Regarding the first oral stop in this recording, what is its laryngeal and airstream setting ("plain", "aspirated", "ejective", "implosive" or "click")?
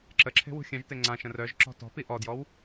click